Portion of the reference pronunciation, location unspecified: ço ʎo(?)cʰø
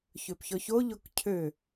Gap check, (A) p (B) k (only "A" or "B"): B